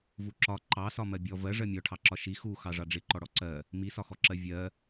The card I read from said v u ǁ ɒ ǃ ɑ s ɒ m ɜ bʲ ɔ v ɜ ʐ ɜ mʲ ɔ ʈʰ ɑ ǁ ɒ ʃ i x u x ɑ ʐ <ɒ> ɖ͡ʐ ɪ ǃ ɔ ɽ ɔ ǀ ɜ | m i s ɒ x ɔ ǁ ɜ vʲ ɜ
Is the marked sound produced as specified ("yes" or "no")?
no